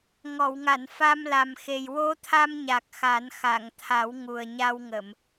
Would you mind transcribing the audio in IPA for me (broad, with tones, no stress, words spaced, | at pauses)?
ŋɔ˨˩˨wŋa˨˩˨n fa˧mla˨˩mxe˨˩j wo˧˥t̪ʰa˧mɲa˨˩k̚ xa˨˩˦n xa˨˩˨ŋt̪ʰa˨˩˦w ŋu˨˩ə̯ɲa˧w ŋə˨˩˨m